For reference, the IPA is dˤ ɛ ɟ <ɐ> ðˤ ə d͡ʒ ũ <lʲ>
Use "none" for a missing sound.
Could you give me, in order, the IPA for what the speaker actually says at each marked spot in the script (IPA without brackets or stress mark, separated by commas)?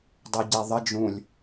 æ, lʲ